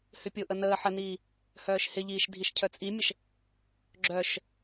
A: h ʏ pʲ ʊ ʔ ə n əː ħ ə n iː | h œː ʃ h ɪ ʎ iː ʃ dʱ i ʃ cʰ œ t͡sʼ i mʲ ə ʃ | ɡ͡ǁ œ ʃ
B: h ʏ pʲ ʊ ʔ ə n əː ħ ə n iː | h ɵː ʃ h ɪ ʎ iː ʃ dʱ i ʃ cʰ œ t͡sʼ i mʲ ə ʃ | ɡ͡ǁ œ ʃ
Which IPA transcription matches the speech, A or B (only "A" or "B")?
A